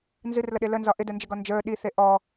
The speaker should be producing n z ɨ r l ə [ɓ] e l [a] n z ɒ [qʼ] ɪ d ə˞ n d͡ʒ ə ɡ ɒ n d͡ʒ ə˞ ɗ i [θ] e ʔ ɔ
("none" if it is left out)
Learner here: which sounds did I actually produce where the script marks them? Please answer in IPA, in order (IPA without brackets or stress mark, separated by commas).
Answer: ɗ, ə, ʔ, θ